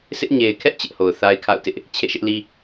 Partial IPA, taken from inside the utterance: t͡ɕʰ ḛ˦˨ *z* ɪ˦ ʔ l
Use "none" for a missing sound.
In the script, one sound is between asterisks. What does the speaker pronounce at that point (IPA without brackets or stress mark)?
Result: ʃ